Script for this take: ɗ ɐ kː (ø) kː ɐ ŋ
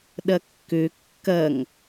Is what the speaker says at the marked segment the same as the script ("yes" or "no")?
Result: yes